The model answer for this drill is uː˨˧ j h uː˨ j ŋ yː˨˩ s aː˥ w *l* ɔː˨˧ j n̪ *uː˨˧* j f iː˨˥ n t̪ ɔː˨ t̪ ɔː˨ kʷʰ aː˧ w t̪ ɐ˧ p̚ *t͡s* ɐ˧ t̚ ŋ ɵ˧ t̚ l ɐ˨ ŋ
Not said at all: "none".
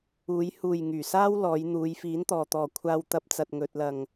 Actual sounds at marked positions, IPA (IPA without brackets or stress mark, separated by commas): l, uː˨˧, t͡s